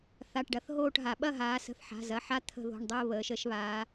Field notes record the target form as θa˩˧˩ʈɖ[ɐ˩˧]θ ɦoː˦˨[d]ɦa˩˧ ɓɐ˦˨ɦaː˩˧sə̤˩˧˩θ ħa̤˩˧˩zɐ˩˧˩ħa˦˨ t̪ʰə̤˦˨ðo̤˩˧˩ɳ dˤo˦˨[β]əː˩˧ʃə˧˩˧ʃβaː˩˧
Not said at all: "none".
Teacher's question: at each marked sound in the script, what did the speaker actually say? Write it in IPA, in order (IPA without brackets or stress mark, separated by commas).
ɐ˩˧, ʈ, β